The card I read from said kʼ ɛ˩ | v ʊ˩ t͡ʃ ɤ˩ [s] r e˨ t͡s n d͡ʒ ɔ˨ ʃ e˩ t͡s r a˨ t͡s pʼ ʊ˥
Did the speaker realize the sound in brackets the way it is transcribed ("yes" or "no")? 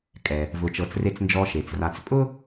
no